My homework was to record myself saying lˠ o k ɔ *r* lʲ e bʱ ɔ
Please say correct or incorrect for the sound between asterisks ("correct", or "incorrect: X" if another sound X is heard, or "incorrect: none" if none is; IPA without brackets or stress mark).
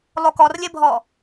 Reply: correct